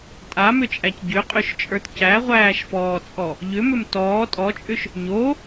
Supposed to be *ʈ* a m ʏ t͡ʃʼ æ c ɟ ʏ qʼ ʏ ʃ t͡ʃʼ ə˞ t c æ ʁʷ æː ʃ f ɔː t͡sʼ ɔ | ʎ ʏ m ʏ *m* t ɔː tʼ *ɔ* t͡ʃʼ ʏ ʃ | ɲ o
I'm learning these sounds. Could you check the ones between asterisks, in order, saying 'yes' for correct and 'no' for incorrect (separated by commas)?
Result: no, yes, yes